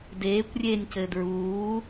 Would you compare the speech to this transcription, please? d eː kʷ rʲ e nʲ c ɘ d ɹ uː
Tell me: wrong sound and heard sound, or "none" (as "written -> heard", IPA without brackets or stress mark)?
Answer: none